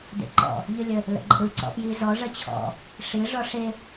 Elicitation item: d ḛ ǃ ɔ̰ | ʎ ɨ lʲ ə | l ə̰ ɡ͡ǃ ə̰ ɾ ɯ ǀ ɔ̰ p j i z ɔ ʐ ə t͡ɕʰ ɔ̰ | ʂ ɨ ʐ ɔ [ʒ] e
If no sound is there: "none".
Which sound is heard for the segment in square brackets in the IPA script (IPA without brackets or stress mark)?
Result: ʂ